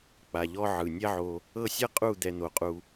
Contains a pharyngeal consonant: yes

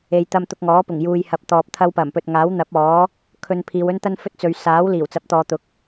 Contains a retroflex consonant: no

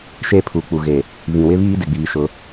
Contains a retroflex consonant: no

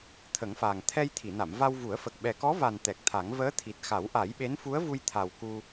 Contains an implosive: yes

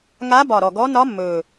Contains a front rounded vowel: no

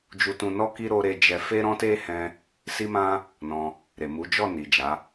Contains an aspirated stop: no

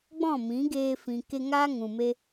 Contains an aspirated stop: no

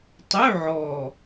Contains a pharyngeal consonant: yes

